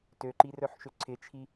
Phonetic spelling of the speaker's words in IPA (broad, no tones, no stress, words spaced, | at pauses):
tøǃirœħʃø ǀʰɪt͡ʃʰi